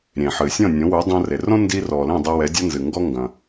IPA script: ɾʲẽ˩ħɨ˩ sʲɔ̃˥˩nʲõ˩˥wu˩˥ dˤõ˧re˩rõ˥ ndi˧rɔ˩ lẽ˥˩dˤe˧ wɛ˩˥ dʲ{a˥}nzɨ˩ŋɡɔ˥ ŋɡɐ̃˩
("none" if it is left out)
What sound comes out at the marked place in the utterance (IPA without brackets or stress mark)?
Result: a˥